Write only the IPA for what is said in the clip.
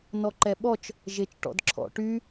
n ɔ ǃ ɛ ɓ ɔ t͡ʃ | ʒ e t͡ʃ ʈ ɔ̰ d ǁʰ ɔ̰ ʈ y

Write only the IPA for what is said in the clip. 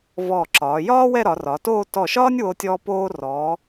v ɔː˧˩ ǁ ɒː˩˧ j ɒː˥ w ɛ˥˧ ɾ ɒ˩˧ r ɒ˩˧ t oː˥˧ t ɔ˧˩ ʃ ɒː˥ nʲ w o˧ tʲ ɔː˧ p oː˧ r ɔː˩˧

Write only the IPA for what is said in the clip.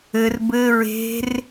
ɘ r b ɘ ɹ e̤ r

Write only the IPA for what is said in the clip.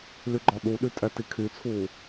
l y ɡ͡ǃ ɔ ɗ u ɗ y tʼ ɛ t i kʰ y t͡sʰ uː

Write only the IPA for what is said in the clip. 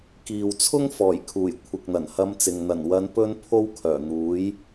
k iː˨ w t͡sʰ ʊ˥ ŋ f ɔː˨˩ j kʰ uː˨˩ j kʷʰ ɪ˨ k̚ n̪ ɐ˨˩ n h ɐ˧ m t͡s ɪ˨ ŋ n̪ ɐ˨˩ n w ɐ˨˧ n p ɵ˧ n pʰ o˥ w kʰ œː˨˩ n̪ uː˨˥ j

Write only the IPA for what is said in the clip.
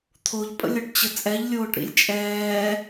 t̪ʰ o ʎ pʼ ə̰ lʲ o ʈ t͡ɕ ə t͡sʼ ɛ ʎ lʲ oː ʈ ɾ ḭ lʲ t͡ʃʼ ɛː

